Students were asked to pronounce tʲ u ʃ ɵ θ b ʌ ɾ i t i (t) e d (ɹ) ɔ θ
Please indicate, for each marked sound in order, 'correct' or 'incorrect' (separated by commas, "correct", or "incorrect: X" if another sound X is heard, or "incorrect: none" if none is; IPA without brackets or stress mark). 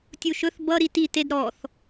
correct, incorrect: ɾ